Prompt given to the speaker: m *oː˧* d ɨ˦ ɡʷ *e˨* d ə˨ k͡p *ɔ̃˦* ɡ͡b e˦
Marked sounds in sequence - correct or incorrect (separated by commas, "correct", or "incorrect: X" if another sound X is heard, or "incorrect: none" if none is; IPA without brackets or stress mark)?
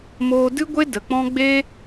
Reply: correct, incorrect: e˦, correct